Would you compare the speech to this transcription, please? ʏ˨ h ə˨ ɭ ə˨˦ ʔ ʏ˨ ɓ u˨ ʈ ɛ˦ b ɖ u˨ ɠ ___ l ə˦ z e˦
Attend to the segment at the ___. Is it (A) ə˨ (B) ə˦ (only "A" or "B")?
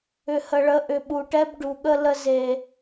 B